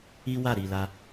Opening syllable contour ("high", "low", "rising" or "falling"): high